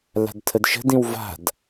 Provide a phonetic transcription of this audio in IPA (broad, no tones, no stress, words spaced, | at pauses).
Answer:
la̤dtʰədʃə̤dĩw va̤d